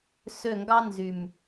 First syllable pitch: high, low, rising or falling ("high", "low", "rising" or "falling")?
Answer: falling